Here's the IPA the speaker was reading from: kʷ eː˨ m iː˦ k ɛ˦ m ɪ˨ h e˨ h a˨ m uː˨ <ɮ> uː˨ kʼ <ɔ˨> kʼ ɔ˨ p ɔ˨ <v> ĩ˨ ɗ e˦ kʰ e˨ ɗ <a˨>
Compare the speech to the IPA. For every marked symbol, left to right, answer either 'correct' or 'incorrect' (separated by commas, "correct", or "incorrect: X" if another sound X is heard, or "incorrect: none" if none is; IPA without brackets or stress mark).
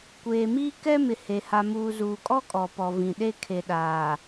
incorrect: z, incorrect: ɔ˦, correct, incorrect: aː˨